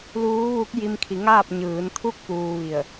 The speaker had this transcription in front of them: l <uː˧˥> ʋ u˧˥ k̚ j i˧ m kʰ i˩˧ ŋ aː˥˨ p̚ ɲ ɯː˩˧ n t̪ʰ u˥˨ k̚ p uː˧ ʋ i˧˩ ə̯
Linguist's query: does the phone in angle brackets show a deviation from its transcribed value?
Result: no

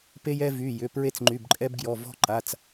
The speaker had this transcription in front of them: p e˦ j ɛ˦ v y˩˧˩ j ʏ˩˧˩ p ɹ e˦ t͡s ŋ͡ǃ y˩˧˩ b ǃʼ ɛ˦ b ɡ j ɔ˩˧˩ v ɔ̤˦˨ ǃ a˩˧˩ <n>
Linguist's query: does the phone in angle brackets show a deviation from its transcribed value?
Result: yes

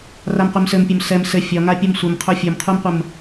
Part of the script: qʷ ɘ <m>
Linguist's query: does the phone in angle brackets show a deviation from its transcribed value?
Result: no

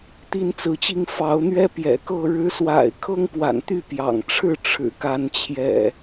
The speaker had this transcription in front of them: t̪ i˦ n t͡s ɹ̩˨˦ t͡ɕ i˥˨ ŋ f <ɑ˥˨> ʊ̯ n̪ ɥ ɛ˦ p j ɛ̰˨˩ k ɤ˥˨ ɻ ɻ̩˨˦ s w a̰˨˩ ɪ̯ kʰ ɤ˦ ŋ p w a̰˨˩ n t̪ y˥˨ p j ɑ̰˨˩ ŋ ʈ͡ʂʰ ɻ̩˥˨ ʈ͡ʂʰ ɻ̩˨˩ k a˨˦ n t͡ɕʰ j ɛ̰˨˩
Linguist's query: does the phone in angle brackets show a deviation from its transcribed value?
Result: yes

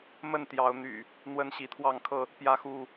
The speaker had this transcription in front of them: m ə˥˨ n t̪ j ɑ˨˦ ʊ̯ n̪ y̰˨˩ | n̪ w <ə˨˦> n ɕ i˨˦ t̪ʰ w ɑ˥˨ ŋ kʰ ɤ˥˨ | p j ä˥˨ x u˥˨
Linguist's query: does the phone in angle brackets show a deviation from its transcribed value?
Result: yes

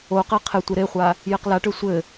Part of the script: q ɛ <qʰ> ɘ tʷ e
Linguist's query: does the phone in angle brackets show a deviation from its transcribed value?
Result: no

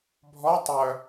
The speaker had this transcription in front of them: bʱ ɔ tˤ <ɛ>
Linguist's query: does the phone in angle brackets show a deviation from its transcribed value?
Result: yes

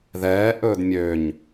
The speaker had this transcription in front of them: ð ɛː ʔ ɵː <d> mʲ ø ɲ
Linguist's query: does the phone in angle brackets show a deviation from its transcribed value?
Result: no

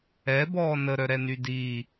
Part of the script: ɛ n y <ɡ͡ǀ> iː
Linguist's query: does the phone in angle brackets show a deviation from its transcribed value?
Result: yes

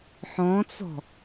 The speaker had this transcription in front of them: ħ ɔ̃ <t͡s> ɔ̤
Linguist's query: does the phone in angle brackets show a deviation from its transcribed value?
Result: no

